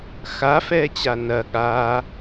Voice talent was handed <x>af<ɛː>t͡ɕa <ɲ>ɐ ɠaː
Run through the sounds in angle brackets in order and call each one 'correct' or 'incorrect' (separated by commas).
correct, correct, incorrect